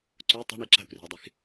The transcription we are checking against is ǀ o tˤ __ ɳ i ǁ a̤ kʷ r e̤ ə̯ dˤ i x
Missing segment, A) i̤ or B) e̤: A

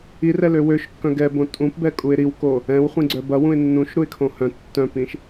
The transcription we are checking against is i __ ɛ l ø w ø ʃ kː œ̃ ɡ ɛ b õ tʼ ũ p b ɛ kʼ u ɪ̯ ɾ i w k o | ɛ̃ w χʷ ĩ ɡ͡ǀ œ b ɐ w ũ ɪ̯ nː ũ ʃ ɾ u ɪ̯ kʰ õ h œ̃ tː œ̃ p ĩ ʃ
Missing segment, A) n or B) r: B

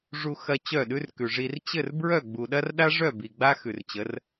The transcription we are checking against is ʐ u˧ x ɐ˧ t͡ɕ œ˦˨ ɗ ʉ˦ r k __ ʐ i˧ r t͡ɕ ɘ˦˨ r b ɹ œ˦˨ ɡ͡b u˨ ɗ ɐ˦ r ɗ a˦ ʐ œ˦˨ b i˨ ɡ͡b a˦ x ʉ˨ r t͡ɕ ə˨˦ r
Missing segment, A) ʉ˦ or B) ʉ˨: B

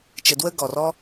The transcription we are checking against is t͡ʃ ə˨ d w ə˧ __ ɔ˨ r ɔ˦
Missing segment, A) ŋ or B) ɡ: B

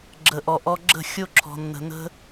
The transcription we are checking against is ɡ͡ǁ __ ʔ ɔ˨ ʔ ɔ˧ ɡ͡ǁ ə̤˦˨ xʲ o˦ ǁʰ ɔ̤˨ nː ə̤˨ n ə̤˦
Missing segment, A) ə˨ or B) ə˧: A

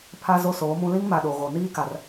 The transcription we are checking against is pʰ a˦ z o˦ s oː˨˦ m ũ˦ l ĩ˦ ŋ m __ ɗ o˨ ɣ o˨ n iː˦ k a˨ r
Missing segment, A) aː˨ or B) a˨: B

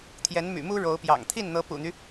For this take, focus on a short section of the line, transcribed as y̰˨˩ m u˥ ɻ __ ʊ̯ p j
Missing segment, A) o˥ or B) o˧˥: B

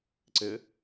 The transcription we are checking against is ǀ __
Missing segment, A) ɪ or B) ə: A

